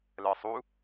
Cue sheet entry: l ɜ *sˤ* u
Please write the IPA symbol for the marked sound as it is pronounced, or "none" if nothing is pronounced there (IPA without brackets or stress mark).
sˤ